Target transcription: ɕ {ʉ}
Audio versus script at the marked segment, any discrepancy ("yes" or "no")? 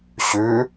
no